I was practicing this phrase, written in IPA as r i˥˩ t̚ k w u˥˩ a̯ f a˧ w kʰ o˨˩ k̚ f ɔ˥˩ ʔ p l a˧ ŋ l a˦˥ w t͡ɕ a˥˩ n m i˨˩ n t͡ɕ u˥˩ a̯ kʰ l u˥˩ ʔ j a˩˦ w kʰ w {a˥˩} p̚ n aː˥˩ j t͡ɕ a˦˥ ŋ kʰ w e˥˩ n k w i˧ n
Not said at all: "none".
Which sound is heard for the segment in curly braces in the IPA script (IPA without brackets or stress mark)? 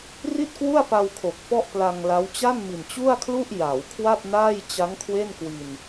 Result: a˥˩